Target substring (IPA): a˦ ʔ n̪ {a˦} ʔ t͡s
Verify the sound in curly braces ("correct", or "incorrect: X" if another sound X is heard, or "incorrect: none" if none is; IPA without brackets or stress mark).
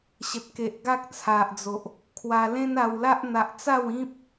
incorrect: a˨